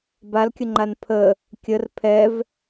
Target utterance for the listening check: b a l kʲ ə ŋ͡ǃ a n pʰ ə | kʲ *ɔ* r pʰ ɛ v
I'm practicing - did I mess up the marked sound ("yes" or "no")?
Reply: yes